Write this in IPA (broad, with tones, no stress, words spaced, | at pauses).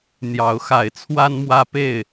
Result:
n̪jɑ˨˦ʊ̯xa˨˦ɪ̯ t͡sʰwa˦nmwä˦ pe˥˨ɪ̯